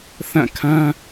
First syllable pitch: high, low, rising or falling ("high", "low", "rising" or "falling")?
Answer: falling